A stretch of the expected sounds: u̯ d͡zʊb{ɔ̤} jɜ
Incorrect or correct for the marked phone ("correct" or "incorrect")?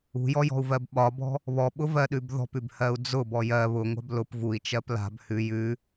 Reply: incorrect